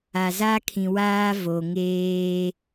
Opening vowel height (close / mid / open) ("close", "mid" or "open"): open